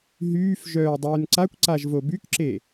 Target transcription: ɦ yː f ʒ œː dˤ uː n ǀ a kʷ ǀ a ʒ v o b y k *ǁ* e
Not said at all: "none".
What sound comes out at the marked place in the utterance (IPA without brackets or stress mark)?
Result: ǁ